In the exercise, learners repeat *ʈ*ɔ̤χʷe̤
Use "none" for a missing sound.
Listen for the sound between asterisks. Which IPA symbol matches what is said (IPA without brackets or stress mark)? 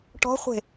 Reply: ʈ